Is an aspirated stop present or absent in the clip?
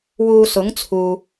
present